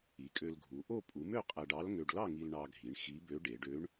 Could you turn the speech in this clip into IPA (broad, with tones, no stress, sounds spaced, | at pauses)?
i˩˧ kʼ ø˧ l ɡʱ u˩˧ ʔ o˥˧ pʼ u˩˧ m ø˥˧ qʼ æ˧ ɖ ɑ˧˥ l ŋ ø˧ ɖ l ɑ˥˧ ŋ i˧ l ɳ ɑ˧ ɡʱ i˩˧ ɳ x i˧˥ b ø˧˥ ɖ e˩˧ ɖ ø˧˥ ɳ